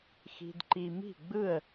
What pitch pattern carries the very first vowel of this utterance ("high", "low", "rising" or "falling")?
high